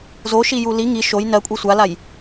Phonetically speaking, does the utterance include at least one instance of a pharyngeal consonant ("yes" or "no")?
no